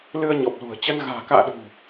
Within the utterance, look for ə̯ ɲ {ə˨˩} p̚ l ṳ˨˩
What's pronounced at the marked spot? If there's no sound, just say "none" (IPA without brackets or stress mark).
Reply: ɔ˨˩